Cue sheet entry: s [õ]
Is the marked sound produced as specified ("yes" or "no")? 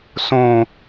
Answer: yes